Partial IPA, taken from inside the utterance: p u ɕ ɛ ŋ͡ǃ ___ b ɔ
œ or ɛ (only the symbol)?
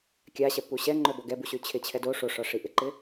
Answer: œ